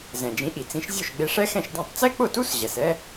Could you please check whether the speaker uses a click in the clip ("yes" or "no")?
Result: no